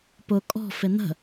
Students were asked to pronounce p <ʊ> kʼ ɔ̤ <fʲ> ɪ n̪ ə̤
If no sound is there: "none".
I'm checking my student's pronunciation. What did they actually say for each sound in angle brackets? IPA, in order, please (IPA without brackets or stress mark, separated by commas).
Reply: ʊ, f